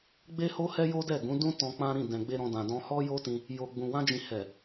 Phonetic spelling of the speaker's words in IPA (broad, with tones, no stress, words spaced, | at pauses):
ɡ͡be˦ho˦ hɛ˦jo˦dɛ˦˨ɡũ˨˦ dũ˦tɔ̃˧ k͡pã˦ɾĩ˦˨ dɛ̃˨ɡ͡be˧ ɾɔ̃˧dã˨ dɔ̃˧hɔ˦jo˦tĩ˧ | jo˨ɡ͡bũ˨wã˧d͡ʒĩ˨ hɛ˨